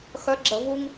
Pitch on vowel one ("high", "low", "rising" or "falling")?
rising